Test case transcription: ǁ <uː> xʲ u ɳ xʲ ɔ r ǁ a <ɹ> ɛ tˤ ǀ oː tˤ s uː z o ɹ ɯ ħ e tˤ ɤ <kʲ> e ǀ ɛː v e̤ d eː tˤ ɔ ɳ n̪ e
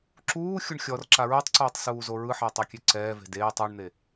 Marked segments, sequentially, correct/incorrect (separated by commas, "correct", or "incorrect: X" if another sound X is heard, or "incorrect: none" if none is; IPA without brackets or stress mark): correct, correct, correct